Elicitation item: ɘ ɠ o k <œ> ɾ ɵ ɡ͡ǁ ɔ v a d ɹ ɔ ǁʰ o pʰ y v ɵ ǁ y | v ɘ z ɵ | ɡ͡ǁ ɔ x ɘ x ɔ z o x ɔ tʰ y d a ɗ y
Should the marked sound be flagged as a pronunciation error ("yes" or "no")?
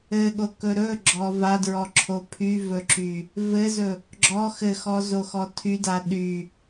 yes